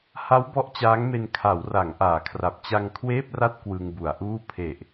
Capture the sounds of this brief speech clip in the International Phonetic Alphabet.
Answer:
h a˦˥ w b ɔ˦˥ ʔ t͡ɕ aː˦˥ ŋ m e˧ n kʰ a˩˦ w r a˩˦ ŋ ʔ aː˩˦ kʰ r a˨˩ p̚ t͡ɕ a˧ ŋ kʰ w eː˥˩ p̚ r a˥˩ t̚ k w ɯ˧ ŋ b u˩˦ a̯ ʔ uː˥˩ pʰ e˨˩ ʔ

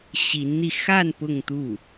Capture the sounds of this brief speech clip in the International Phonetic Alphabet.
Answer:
ɕ i˧˥ n n̪ i˧ x a˥˧ n p ʊ˥˧ ŋ t̪ u˥˩

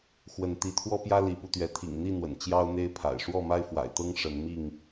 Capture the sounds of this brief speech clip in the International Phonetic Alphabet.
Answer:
x w ə˨˦ n t̪ i˨˦ t̪ʰ w ɔ˦ p j ä˦ l i˨˦ p u˧ t̪ ɥ ɛ˨˦ t̪ʰ ḭ˨˩ ŋ n̪ i˥˨ n̪ w ə̰˨˩ n t͡ɕ j ɑ˦ ʊ̯ n̪ e˦ ɪ̯ pʰ a̰˨˩ ɪ̯ ʂ w ɔ˥˨ m a˦ ɪ̯ f w a̰˨˩ ɪ̯ t̪ ɤ˦ ŋ ʂ ə˨˦ n m i˥˨ ŋ

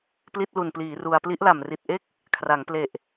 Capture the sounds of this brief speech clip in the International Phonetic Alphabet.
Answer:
p l i˥˩ t̚ l u˨˩ n p l iː˩˦ r u˧ a̯ p l i˦˥ ʔ l a˨˩ m r i˨˩ t̚ ʔ e˥˩ k̚ | kʰ r a˩˦ ŋ p l e˨˩ ʔ

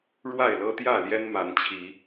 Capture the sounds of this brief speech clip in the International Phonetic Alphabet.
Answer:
ɻ w a˥˨ ɪ̯ l ɤ˦ t̪ j ä˥˨ l j ɛ˦ n m a˨˦ n t͡ɕʰ i˨˦

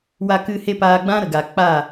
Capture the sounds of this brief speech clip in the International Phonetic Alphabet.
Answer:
w a˧ k ɨ˧ h e˦ p aː˧ ɡ͡b ã˦ ɾ ə˨ ɡ aː˨ k͡p a˦˨

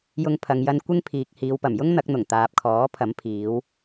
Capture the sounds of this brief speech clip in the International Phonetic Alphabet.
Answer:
j ʊ˧ ŋ pʰ ɐ˨ ŋ j ɐ˧ n kʷ ɪ˥ ŋ pʰ iː˨ k̚ h iː˨˧ w p ɐ˨˩ m j ʊ˥ ŋ n̪ ɐ˨˥ k̚ n̪ ʊ˨˩ ŋ t̪ aː˨ p̚ kʰ ɔː˨˥ pʰ ɐ˨˥ m pʰ iː˨˧ w

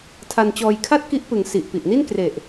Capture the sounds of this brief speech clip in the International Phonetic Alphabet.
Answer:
tʰ a˧ n t͡ɕ ɔː˧ j kʰ a˥˩ t̚ k i˦˥ ʔ p ɯ˩˦ ŋ s i˨˩ ʔ p i˨˩ ʔ n i˥˩ n k r e˨˩ ʔ

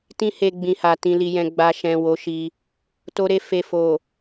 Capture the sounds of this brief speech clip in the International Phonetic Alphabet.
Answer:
t ĩ˧ h e˨ ɡ͡b ĩ˨ h a˨ t ĩ˨ l i˨ j ɛ̃˨ ɡ͡b a˨ ʃ ɛ̃˨ w o˨˦ ʃ i˧ | t o˧ ɾ e˧ f e˨ f o˨

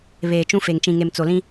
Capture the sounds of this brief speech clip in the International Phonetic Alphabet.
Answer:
β eː˨ t͡ʃ ũ˦ f e˨ ŋ t͡ʃ ĩ˨ ŋ e˨ m t͡s o˨ l ĩ˦

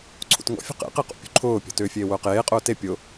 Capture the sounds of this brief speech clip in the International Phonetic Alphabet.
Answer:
ǀʰ ṵ t ŋ ɔ̰ fʲ ṳ q ḛ q e q ṵ pʲ ṳ ǃʰ ʊː pʲ ɔ̤ t ʏː fʲ eː w ʊː q eː qʼ ʊː t e pʲ ʊ

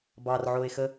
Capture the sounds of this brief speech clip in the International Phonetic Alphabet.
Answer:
b ɑ r ʕ o e̯ x ə

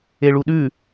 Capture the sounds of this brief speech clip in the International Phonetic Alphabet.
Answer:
e ɭ u ɗ ʉ

